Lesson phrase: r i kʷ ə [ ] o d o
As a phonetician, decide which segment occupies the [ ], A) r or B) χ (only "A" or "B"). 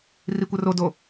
A